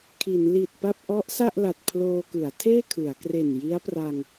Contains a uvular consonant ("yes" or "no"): no